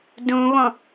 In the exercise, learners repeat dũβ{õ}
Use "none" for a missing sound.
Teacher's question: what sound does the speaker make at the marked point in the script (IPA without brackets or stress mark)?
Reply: õ